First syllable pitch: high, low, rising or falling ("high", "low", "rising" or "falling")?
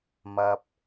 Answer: low